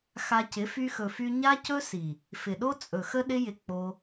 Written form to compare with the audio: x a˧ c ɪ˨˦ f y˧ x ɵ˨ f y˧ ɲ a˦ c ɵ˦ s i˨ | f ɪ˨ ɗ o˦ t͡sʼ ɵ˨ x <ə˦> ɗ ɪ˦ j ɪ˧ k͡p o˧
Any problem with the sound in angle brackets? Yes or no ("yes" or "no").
no